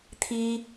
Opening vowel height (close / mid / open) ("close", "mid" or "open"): close